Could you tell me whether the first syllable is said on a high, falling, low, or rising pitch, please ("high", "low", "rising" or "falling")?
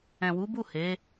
low